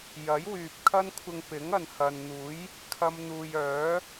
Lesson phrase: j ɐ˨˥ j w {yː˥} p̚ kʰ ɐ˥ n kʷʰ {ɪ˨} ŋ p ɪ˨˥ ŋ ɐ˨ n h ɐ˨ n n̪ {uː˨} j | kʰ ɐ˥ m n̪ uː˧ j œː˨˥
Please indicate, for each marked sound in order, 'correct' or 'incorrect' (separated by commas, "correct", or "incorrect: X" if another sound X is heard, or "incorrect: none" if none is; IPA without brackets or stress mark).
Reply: incorrect: yː˨, incorrect: ɪ˧, incorrect: uː˨˥